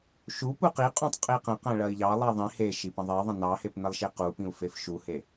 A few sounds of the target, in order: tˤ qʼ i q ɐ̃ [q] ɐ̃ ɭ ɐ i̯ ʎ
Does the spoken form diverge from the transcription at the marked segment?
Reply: no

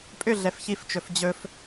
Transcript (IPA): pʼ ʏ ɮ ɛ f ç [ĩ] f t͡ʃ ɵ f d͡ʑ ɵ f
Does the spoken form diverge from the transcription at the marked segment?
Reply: yes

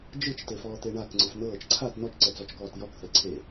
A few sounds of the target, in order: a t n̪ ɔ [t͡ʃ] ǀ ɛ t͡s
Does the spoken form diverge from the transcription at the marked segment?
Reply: no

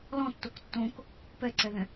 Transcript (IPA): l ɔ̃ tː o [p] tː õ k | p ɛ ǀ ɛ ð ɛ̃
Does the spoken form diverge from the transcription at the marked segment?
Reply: yes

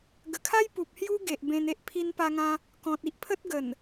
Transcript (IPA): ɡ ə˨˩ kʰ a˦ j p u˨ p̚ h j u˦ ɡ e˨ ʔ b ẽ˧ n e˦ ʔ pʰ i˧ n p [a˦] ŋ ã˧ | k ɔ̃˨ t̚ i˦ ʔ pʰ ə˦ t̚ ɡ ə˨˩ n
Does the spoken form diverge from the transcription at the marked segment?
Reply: yes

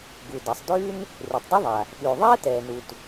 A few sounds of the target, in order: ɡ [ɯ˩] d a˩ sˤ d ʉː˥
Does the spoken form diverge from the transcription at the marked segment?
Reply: yes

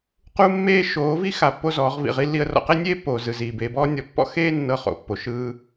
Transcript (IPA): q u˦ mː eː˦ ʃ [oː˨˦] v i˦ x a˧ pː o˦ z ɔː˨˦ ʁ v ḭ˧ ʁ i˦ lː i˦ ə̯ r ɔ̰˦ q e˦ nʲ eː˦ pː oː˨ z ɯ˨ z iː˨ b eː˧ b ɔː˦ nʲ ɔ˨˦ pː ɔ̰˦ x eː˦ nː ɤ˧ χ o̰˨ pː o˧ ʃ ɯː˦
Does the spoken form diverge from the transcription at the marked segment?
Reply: no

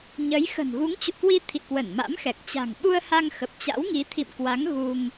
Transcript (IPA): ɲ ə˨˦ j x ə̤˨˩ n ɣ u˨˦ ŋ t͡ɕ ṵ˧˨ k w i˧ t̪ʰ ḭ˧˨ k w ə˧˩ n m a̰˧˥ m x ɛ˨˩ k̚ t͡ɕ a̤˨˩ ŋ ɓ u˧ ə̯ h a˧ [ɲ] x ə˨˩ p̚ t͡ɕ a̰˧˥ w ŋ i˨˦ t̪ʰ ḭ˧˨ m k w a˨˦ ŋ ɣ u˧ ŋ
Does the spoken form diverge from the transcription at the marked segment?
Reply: yes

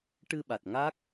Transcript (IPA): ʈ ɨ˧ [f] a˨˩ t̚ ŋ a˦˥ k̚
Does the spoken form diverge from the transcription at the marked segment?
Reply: yes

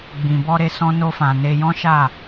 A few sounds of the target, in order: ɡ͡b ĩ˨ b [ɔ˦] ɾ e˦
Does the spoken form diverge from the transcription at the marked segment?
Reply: yes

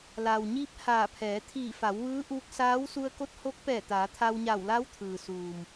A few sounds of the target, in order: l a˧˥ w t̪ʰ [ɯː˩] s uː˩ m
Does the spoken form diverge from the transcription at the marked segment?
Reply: no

